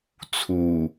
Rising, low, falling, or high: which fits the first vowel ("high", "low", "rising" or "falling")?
low